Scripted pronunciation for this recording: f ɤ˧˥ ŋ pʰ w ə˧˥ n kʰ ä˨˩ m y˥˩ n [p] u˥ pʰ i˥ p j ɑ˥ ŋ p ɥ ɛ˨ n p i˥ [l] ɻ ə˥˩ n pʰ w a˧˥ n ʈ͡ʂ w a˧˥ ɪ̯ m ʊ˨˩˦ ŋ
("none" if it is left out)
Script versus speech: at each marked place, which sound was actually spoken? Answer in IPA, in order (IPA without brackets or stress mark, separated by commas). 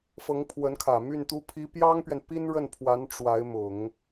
t̪, n